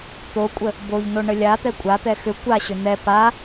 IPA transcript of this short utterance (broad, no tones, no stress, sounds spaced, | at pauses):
t̪ o kʷʼ ə | b o ʎ n o ɳ ə lʲ a t̪ ɛ kʷʼ a t̪ ɛ x ʏ kʷ a ɕ ʏ n̪ ɛ p a